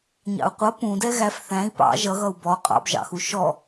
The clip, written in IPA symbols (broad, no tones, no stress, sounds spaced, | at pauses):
ɲ ɑ̰ u̯ qʷ ʌ p ũ d ɛ ɣ æ f θ æ̃ i̯ p ɑ̰ ʒ ʌ ɣ ʌ u̯ b ɔ qʼ ɑ̰ b ʒ ɑ̰ x u ʃ ɔ